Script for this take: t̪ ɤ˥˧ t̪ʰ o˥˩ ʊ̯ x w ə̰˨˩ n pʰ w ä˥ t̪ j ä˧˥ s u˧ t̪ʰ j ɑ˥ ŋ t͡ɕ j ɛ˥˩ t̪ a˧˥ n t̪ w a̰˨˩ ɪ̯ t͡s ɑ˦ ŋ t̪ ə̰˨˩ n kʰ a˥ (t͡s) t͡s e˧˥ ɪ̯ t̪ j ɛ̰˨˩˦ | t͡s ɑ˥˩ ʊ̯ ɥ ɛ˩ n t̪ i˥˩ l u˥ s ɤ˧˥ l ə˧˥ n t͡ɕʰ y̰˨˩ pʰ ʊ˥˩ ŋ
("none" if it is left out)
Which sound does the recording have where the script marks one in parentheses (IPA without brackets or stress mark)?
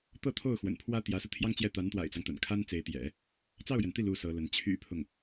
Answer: n